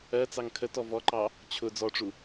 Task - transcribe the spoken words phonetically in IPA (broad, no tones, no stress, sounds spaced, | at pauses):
ɜ t͡s ɑ ŋ kʰ ə t ɔ v ɔ ǃ ɑ | t͡ɕʰ ʊ d͡z ɔ ʈ͡ʂ u